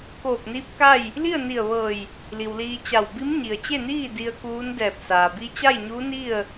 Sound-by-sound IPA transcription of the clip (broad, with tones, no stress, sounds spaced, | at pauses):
k oː˧˩ k̚ n iː˧˥ p̚ k a˥˨ j | l i˥˨ ə̯ n i˧˩ ə̯ ʋ ɤː˧˩ j | l i˩ w l iː˧ t͡ɕ a˧˩ w b i˧˥ m ɲ i˩ ə̯ t͡ɕ e˥˨ n iː˥˨ d i˧ ə̯ k uː˧˥ n d ɛː˧˩ p̚ s aː˩ b i˧ t͡ɕ a˥˨ j ɲ uː˧˥ n i˥˨ ə̯